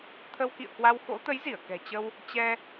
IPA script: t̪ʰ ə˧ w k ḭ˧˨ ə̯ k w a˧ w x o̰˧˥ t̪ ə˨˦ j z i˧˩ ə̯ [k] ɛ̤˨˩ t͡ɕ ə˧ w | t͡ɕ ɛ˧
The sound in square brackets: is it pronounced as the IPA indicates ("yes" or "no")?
yes